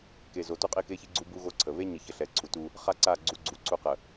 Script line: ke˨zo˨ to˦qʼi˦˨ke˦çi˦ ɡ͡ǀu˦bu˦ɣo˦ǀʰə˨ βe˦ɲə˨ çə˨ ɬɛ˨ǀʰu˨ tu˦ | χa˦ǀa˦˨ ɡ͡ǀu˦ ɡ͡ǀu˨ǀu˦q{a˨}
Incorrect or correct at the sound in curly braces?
incorrect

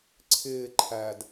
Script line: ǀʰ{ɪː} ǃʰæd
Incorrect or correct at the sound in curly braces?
correct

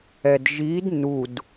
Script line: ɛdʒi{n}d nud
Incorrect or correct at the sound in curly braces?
incorrect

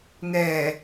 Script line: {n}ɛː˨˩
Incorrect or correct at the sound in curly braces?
correct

